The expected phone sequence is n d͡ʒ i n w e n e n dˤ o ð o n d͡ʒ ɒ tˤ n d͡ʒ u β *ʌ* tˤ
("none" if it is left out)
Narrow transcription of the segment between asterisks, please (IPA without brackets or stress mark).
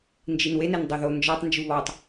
ɒ